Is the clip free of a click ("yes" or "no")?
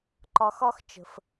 no